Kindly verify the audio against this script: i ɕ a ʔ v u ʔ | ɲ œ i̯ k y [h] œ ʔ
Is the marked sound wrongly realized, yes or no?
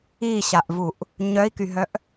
yes